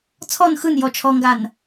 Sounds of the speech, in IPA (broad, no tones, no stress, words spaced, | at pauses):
t͡sʰɔn xɯn jɔt͡ʃʰɔŋɡan